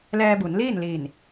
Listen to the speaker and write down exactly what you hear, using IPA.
l ɛː˧ b u˩˧ n l iː˥˨ n l iː˧˩ n

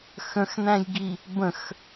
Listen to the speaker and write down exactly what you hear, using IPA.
x ə̃ x n æ̃ j ɡ i | b ə̃ x

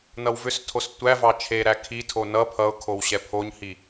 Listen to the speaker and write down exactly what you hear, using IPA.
n ʌ w v ʏ s tʰ o s tʷ æ v ɑ t͡ʃʰ e ɾ æ kʰ i tʰ o n ʌ pʰ ʌ ʊ̯ kʰ o w ɕ ɛ pʰ o ɲ h i

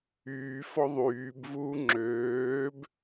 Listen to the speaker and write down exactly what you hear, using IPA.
yː f ɔ ðˤ yː b v uː ŋ͡ǁ øː b

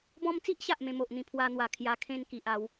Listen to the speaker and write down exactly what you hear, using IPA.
b ɔ̃˧ m t͡s i˦ ʔ ɕ a˨ ʔ m ẽ˧ m o˨ ʔ n̪ ĩ˧ pʰ w a˦ n̪ w a˧ kʰ j a˧ kʰ ẽ˥˧ n k i˨ ʔ a˨˦ w

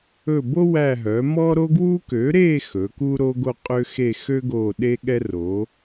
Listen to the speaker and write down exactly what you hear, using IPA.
ɵ˦˨ b o˥ w æ˦˨ ɦ œ˩˥ m ɔ˥ ɾ o˥ ɡ w u˥ k ø˩˥ ɾ e˦˨ x ɵ˩˥ k u˥ ɾ o˥ ɡ o˥ qʼ ø˥ x e˦˨ x ø˥ ɡ o˦˨ ɗ e˥ ɠ ɛ˥ r o˩˥

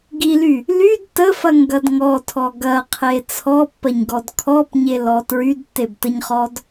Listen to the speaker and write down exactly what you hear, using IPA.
ɡ i l y | l y d t ə f ɐ ŋ ɡ ɐ d ŋ ɔ tʰ ɔ ɡ ɐ qʰ e t͡sʰ ɔ pː ɐ ɲ ɡ ɔ d kʰ ɔ p ɲ e l ɔ t ɹ y d tː e b t ə ɲ χ ɔ d

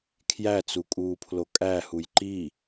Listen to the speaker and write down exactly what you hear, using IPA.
kʰ j æ t͡s u kʼ uː pʰ l o kʼ æ h u j ǃ i

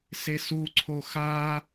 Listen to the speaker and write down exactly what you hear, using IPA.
s e s u ǀʰ o x a

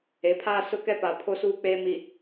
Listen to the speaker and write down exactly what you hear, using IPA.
e˨˦ pʰ aː˦ s ʊ˦ k ɛ˦ p a˨ pʰ o˦ s uː˦ k͡p eː˦ m i˨

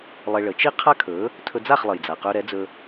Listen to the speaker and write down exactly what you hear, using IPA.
lˠ e˧ ɭ ə˩˥ t͡ʃ i˥ qʰ a˥ kʰ ɵ˩˥ | tʰ ɵ˧ d͡z a˥˩ χ lˠ ə˩ j d͡z a˩ q ɵ˧ ɾ ɛ˩˥ d͡z ɵ˧

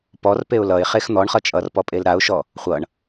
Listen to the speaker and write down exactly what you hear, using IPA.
p ɔ r p e ʊ̯ l ʌ ɪ̯ χ e x n̪ ɔ ɳ χ ʌ t͡ʃʼ ʌ r p ɔ pʼ e l ɾ a ʊ̯ ʃ ɔ | χʷ ʌ ɳ

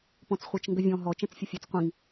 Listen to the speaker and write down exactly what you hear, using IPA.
p ɔ̃ t͡s χʷ ɛ t͡ʃ ŋ ɡ ə vʲ ɔ̃ ɦ ɔ t͡ʃ ɛ̃ t͡s fʲ ə fʲ ɛ t͡s qʷ ĩ ŋ

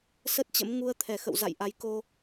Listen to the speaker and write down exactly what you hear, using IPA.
s ə˦˥ t̚ t͡ɕ ə̰˧˥ m ŋ u˧ ə̯ t̪ʰ ɛ˧˩ x ə̰˧˨ w z a̰˧˨ j ʔ a˨˦ j k o˧

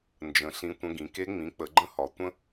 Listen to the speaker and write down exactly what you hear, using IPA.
n d͡ʒ ə̃˩˧ ɬ ĩ˧ tʷ ə̃˧ ɡ ĩ˩˧ k e˦˥ ŋ͡m ĩ˩˥ k͡p ə˩˧ ɡ͡ǃ ə̃˦˥ h ɒ˩˧ tʷ ə̃˦˥

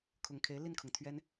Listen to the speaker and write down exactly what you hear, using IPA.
kʰ ʊ˨˩ ŋ kʰ e˧˥ ɪ̯ l i˥˩ n kʰ ʊ˩ ŋ t̪ʰ ɥ ɛ˥ n

